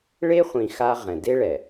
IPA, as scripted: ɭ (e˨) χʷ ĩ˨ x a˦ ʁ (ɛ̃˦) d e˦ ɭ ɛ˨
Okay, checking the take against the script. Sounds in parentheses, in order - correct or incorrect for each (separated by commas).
incorrect, incorrect